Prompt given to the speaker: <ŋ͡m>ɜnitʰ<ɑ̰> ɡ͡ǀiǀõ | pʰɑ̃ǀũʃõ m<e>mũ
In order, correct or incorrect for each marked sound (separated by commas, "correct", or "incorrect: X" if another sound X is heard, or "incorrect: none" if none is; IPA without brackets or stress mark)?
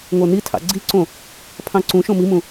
incorrect: ŋʷ, correct, incorrect: i